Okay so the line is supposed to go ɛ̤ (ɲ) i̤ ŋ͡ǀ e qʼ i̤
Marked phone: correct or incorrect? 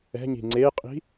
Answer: correct